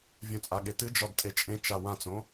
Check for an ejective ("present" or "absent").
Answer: present